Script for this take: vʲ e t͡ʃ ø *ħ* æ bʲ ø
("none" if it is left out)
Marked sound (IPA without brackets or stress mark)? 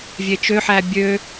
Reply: ħ